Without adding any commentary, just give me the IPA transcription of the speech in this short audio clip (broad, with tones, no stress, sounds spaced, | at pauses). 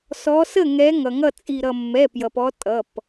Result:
s ɔ˨˦ s ə˥˩ ŋ ɛ˨˦ ŋ ʌ˩ ŋ ʌ˥˩ t͡sʼ i˧˩ ɾ ʌ˧˩ mː ɛ˩˧˩ p j ʌ˩ p ɔ˨˦ tʼ ʌ˩˧˩ p